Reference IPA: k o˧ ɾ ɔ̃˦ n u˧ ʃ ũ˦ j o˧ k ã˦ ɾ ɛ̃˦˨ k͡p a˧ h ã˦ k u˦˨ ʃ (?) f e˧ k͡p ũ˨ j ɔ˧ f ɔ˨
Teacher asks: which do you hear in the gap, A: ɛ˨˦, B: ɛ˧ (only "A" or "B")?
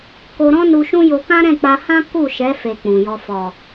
A